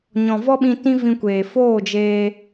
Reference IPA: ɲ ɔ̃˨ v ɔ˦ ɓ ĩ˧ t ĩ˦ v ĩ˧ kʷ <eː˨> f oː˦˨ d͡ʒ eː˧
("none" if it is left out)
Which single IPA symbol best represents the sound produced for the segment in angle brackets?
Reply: eː˨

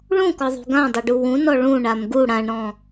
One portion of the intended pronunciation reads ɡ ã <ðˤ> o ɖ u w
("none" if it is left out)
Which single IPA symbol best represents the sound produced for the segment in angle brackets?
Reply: dˤ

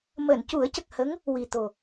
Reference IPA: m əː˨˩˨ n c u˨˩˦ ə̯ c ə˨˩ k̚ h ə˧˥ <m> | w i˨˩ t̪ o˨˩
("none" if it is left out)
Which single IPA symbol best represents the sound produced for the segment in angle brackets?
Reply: ŋ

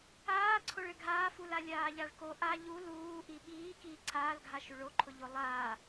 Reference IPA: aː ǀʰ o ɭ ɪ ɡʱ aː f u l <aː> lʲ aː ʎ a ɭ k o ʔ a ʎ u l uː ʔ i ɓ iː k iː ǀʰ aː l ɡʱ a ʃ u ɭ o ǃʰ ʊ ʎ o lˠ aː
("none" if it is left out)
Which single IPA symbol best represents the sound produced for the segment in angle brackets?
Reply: a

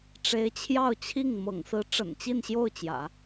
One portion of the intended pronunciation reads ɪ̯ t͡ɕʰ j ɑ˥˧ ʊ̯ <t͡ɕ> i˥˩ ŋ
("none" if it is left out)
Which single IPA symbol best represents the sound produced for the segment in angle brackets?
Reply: t͡ɕʰ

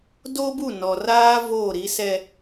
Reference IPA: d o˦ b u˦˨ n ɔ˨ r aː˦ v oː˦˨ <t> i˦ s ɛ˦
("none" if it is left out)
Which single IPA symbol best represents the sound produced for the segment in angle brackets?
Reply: ɾ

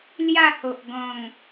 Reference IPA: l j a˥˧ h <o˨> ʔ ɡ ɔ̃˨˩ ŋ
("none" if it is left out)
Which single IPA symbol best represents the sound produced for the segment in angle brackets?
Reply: o˨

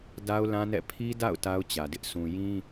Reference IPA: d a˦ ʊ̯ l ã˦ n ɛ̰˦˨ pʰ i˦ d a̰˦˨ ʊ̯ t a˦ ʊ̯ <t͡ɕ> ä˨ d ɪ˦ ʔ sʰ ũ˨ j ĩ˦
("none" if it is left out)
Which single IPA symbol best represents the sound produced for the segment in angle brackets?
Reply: t͡ɕ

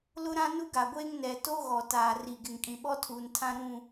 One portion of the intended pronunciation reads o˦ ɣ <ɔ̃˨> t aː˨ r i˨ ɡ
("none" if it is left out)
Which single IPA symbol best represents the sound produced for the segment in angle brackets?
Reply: ɔ˨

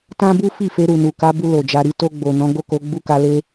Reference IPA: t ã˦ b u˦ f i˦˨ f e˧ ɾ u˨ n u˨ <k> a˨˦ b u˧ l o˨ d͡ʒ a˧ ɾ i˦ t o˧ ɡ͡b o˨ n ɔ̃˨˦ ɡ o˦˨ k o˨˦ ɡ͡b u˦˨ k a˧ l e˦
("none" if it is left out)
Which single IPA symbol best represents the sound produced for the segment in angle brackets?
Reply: k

